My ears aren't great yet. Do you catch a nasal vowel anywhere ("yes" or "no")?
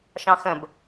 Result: yes